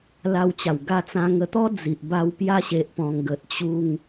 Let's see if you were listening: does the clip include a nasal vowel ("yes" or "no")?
yes